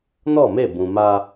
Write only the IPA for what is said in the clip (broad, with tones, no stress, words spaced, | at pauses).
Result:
nɔ˦˨me˦˨ bũ˨ma˦